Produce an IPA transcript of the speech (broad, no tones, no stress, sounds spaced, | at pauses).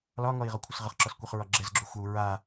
l ɒ ŋ ɔ i̯ ʁ ɔ kʷʰ ə s ʁ ə χ ǁ ɔ s kʷ ɛ χ ɹ ɒ ɡ͡ǁ ɛ z ɡ͡ǁ u xʷ ɛ u̯ ɹ a